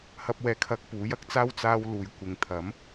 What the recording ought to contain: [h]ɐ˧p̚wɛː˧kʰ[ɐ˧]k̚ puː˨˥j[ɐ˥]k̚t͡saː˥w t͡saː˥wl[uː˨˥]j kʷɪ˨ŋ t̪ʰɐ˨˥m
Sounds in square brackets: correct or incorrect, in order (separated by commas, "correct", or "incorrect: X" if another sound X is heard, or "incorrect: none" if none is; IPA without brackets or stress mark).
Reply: correct, correct, correct, incorrect: uː˧